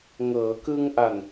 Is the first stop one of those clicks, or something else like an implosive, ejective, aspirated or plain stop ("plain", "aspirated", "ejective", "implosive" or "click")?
plain